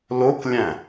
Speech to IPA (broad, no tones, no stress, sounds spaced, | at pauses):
l o k lʲ æ̃